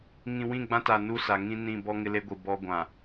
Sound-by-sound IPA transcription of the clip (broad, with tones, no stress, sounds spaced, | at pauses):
ŋ ĩ˨ w ĩ˦˨ ɡ͡b ã˦ t a˨ n u˦ s a˨ ŋ ĩ˦ n ĩ˦˨ b ɔ˦ ŋ ɪ˦ l e˦ ɡʷ i˨ b ɔ˦ ɡʷ ã˨